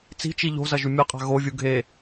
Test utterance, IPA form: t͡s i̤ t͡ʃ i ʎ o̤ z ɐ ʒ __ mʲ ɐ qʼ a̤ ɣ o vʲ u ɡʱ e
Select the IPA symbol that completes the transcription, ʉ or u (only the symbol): ʉ